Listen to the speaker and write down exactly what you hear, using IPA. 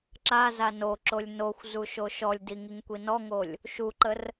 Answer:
ǁ a z a n o ǁ o lʲ n o xʷ z u ʃ o ʃ ɔ lʲ d i ŋ i ŋ kʷ i n ɔ ŋ o lʲ | ʃ u ǃ ə r

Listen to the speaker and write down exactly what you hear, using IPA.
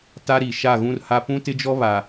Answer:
t a˦ ɾ i˨ ʃ a˦˨ ɣ ũ˦ r h a˦ p ũ˦ t ɪ˦ d͡ʒ ɔ˦ β a˨

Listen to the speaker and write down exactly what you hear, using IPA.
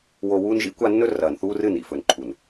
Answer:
w o˨ w uː˦ n ʒ ḭ˦ kʷ a˦ nː ɵ˦ r ɐː˨ n θ uː˦ r ɨ˦˨ n ḭ˦˨ f ɵ˨ n ǃʰ u˨ n

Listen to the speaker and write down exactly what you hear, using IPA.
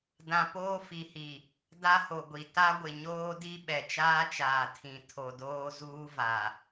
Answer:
d ã˨ p oː˦ f i˨ h i˨ | d a˦ h o˨ ɡʷ i˨ t a˦ ɡʷ ɪ˨ ɲ oː˦ d i˦ ɓ ɛ˨ t͡ʃ aː˦ t͡ʃ aː˨ tʰ ĩ˨ tʰ o˨ d oː˦ z uː˦ v a˨

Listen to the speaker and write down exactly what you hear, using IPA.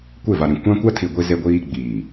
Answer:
kʷ e˦˨ v a˨ ɾ ĩ˨ kʷ ã˦ kʷ a˦ tʰ i˨ ɡʷ i˦ z e˦ ɡʷ iː˦ ɡ͡b iː˨

